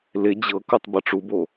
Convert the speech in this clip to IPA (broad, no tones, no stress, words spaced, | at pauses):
lɪ d͡ʑɤkutˤ bʌʈ͡ʂubo